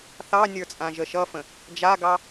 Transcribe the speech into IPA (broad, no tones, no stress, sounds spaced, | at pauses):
θ ɑ nʲ ə˞ t͡sʼ ã ʒ ə ʃ ʌ f ə̃ | d͡ʒ a ɡ ɑ